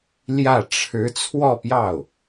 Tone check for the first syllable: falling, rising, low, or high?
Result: falling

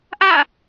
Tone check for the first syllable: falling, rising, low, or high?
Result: falling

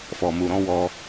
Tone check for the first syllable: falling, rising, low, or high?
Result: low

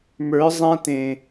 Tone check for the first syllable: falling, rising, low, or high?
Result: rising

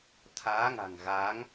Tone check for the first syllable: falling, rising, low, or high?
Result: rising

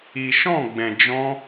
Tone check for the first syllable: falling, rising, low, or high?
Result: low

